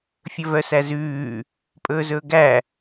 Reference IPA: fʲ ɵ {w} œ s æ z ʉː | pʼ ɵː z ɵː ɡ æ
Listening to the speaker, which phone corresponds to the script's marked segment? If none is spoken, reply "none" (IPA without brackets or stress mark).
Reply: v